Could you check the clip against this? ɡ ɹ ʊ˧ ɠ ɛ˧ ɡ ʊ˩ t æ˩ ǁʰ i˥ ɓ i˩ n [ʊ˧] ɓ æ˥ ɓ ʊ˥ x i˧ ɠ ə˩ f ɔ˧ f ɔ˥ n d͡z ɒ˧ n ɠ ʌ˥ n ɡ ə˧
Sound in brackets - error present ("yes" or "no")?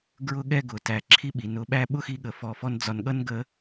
no